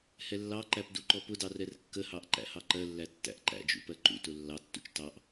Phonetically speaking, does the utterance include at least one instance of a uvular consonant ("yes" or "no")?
no